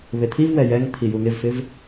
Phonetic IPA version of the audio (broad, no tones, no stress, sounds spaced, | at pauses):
β e t̪ʰ i v w ɛ j ɛ ŋ t̪ʰ i j u ŋ ɪ v f ɪ v